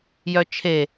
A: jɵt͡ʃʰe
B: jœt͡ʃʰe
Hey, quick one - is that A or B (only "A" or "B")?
B